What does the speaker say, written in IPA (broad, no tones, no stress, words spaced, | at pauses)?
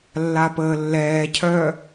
lːapəːlːɛːcʰœ